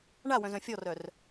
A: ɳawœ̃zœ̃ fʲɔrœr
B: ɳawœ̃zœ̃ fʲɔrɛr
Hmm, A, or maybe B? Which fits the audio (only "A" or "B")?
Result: A